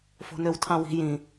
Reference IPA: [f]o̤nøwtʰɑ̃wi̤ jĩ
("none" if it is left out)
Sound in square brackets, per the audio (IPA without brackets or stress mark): f